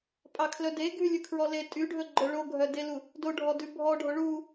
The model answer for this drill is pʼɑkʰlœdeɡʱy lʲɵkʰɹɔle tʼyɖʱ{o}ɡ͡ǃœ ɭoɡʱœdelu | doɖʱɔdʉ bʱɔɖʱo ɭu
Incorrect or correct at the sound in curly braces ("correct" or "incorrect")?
incorrect